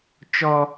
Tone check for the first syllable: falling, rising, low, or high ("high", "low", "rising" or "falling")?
high